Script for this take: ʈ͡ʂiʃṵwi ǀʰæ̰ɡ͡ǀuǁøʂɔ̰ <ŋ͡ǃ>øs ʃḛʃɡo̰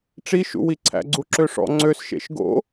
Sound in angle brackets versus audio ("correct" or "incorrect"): incorrect